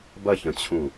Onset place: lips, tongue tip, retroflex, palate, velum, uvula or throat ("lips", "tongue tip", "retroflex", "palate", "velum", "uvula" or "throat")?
lips